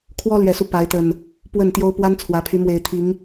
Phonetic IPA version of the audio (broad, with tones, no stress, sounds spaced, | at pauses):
kʰ w ɔ˦ l ɥ ɛ˨˩ s u˦ p a˨˦ ɪ̯ t̪ ə˨˩ n | p w ə˥˨ n t̪ j o˦ ʊ̯ p w a˦ n t͡sʰ w ä˨˦ pʰ y˨˦ m w e˨˩ ɪ̯ t̪ʰ i˨˦ ŋ